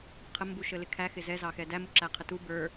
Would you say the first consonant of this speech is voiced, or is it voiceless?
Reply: voiceless